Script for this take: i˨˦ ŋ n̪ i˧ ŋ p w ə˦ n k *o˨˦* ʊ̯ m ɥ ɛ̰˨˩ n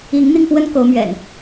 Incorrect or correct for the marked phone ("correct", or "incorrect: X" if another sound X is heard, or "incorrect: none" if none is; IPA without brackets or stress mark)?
correct